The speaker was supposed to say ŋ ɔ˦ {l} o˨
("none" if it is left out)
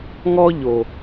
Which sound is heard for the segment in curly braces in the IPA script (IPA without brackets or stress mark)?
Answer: ʎ